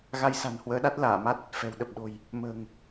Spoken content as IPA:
ɣ a˧ j s a̤˨˩ n h w əː˨˦ ɗ a˦˥ t̚ l aː˧˩ m a˦˥ t̚ | f ɛ̤˨˩ w ɗ ə˨˩ p̚ ɗ o̤˨˩ j | m ə̤ː˨˩ ŋ

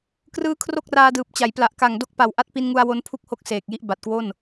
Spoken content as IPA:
k r ɯː˦˥ kʰ r o˥˩ k̚ r aː˧ d ɯː˨˩ p̚ t͡ɕ a˩˦ j p l a˨˩ ʔ k a˨˩ ŋ d o˦˥ k̚ p a˨˩ w ʔ a˦˥ t̚ p i˧ n ŋ u˧ a̯ w o˦˥ n pʰ u˥˩ k̚ h o˦˥ k̚ s eː˨˩ k̚ j i˦˥ ʔ b a˨˩ t̚ k w o˥˩ n

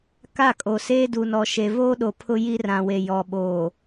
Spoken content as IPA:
k a˦˨ kʼ o˨ s eː˦ d u˨ n ɔ˨ ʃ e˨ v oː˦ ɗ o˨ pʰ ʊ˦ j i˦ r ã˨ w e˨ j ɔ˨ ɓ oː˨

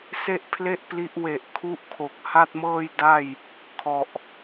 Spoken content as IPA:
s e˥˩ ʔ pʰ l e˥˩ ʔ p l i˦˥ ʔ w e˨˩ ʔ kʰ u˦˥ ʔ kʰ o˨˩ k̚ h a˥˩ t̚ m ɤː˥˩ j d a˥˩ j | kʰ ɔ˨˩ ʔ

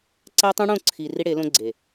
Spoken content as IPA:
ǀ æ˦ tˤ ũ˦ ɽ õ˦˨ ǀʰ iː˨ r i˦ ɽ e˨˦ l õ˦ ɡ͡ǀ e˨

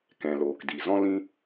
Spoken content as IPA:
k ɛ̃˨ l oː˨ k d i˨ z ɔ̃˦ l ĩ˦

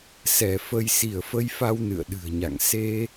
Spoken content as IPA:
s ɛ˧˩ f ə˧ j s i˧˩ ə̯ f ə˧ j f a˧ w n ɨ̰˧˨ ə̯ ɗ ɨ̤˨˩ ə̯ ɲ a̰˧˨ ŋ s e˧

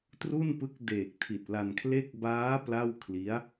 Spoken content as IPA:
t r u˥˩ n p ɯ˦˥ k̚ d eː˨˩ k̚ tʰ i˨˩ t̚ l a˧ n kʰ l e˥˩ k̚ b aː˦˥ p l a˥˩ w kʰ l i˦˥ a̯

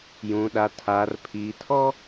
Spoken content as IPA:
j ũ˨ ɗ a˨ tʰ aː˨ r pʰ iː˨ tʰ ɔ˦

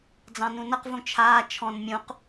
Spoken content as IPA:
d͡z ɑ̃ n ũ n ʌ q v ũ t͡ʃʰ aː t͡ʃʰ ɔ̃ n mʲ ũ q

